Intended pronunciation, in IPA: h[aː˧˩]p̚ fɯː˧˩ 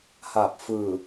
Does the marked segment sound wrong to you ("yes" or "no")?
no